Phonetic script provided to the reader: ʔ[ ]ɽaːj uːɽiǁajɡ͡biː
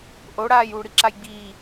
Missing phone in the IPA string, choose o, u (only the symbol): o